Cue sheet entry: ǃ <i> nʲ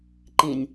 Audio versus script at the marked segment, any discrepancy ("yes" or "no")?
yes